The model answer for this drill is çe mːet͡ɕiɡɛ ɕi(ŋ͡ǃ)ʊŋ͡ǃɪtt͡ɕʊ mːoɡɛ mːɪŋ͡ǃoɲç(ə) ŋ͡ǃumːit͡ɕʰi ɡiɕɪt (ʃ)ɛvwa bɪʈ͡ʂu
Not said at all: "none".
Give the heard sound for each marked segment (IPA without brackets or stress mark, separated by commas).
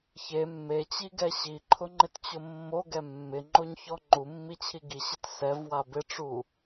ǃʰ, ɔ, s